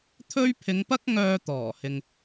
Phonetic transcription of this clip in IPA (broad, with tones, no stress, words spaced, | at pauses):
t̪ʰɵ˥ɥ pʰɪ˨˧ŋpɐ˥k̚ ŋœː˧ t̪ɔː˨˩hɪ˨ŋ